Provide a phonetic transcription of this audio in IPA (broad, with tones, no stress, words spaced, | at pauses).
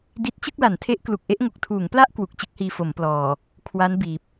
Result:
di˦˥t̚ t͡ɕɯ˥˩k̚la˩˦ntʰe˦˥ʔ klu˨˩k̚ʔe˥˩ʔŋo˨˩k̚ tʰuː˩˦ŋpla˥˩ʔ kwu˨˩k̚t͡ɕɯ˦˥k̚hiː˧ fo˩˦mplɔː˨˩ | kʰwa˦˥n biː˨˩p̚